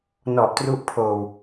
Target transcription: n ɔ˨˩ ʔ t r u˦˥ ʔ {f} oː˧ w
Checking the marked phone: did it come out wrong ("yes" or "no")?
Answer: yes